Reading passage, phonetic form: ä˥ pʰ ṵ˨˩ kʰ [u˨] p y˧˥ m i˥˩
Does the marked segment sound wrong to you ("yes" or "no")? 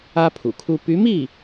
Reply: yes